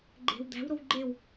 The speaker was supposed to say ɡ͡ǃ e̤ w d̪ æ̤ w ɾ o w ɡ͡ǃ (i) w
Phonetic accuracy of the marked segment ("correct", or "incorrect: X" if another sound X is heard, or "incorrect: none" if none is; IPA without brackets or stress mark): incorrect: e